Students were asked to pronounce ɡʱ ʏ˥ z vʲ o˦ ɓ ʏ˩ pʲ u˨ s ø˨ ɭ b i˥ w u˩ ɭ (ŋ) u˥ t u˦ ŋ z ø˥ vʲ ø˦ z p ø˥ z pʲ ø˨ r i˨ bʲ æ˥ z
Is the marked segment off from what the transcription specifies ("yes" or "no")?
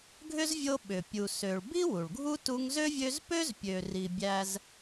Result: yes